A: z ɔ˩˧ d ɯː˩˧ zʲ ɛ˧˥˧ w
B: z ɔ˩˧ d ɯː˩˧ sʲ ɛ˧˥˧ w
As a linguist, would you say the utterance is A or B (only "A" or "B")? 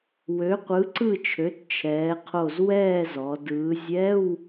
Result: A